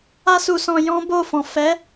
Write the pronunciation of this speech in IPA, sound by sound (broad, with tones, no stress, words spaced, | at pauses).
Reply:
a˦su˧sɔ̃˧ jɔ̃˦bo˦˨fɔ̃˨ fɛ˨˦